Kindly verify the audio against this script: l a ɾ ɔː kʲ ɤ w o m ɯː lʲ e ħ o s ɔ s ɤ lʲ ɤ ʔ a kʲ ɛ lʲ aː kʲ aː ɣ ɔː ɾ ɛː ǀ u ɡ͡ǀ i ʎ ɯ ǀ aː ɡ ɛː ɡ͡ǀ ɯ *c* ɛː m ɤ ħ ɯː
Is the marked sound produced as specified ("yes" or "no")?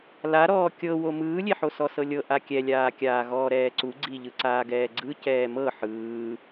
yes